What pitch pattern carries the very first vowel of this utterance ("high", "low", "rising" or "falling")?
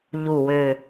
low